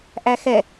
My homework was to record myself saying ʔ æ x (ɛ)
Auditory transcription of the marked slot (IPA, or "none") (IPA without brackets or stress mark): ɛ